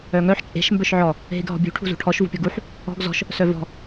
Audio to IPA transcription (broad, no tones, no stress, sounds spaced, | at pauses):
œ ŋ œ ħ t͡ʃʼ e̤ ʃ m b œ ʃ ʕ ɔ | ɦ e ɡ ɦ ɔ̤ bʲ ṳ ʈʰ ṳ z ṳ ʈʰ ɔ ʃ v ṳ pʲ ɔ ɡ u ħ | ɔ̤ ɡ z ɔ̤ ʃ | s œ v ɔ̤